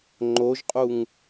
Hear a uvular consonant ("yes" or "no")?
yes